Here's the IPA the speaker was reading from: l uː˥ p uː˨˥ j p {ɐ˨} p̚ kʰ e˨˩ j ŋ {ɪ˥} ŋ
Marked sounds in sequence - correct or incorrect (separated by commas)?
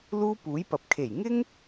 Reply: correct, correct